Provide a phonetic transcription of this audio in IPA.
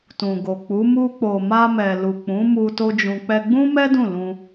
t ũ˨ ɡ o˨ k͡p u˨˦ m u˧ k͡p o˨ m a˧ m ɛ˨ l u˨ k͡p ũ˨˦ m u˧ t o˦ d͡ʒ ũ˧ k͡p ɛ˧ ɡ͡b ũ˦ m ɛ˦ d ũ˦˨ l ũ˧

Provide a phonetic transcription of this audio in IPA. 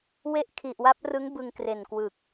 w e˦˥ ʔ kʰ i˨˩ ʔ w a˦˥ p̚ r ɯ˦˥ ŋ b ɯ˧ ŋ k r e˨˩ n k w ɯ˨˩ k̚

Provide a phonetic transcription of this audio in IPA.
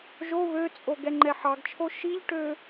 ʒ o β ø t͡sʼ o ɡ ɛ ŋ͡ǃ ɛ ħ ɑ ɡ t͡ʃʰ o ʃ i ʎ ʈ ø

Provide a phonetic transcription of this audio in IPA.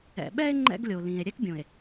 ɛ̰˨ ɓ ɛ˦ e̯ ŋ͡ǃ ɛ̰˦ ɡ lʲ o˨ l ĩ˨ e̯ ɾʲ ɛ˦ k bʲ õ˨ e̯

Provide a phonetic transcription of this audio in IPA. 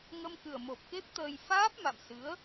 ŋ ə˧ m k ɨ˨˩ ə̯ m o˨˩ p̚ k e˦˥ p̚ t̪ əː˧ j f aː˦˥ p̚ m a̰˧˨ m s ɨ˨˦ ə̯

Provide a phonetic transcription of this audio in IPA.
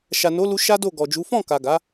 ʃ a˨ n o˨˦ l u˧ ʃ a˦ d o˦˨ ɡ ɔ˨ d͡ʒ u˨˦ f ɔ̃˦˨ k a˨ ɡ a˨˦

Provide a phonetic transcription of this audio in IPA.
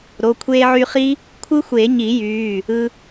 ɾ o˩˧˩ kʷʰ eː˧ ʕ y˧ χ i˦˥ | kʷʰ ɯ˦˥ xʷ eː˨˩˦ ɲ i˨˩˦ j yː˩˧˩ | ɯ˧

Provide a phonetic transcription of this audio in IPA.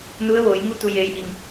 n u˧˥ ə̯ ʋ oː˩˧ j ŋ u˥˨ t̪ u˧˩ j eː˩˧ j ʔ i˩ ŋ

